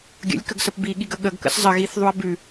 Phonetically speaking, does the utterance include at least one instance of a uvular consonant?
no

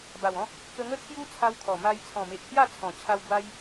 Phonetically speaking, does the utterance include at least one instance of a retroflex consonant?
no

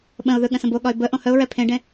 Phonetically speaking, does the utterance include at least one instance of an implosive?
yes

